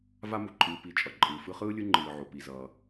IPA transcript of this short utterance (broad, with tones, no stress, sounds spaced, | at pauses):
v a˦ m u˩ ǃʼ ɯː˨ p i˨ t͡ʃʼ ʌ˩ ǃʼ ɯː˩ f ɯ˦ χ ɯː˥ lʲ ɯ˦ ŋ͡ǃ ɯː˩ ʕ o˩ p i˩ z ʌː˩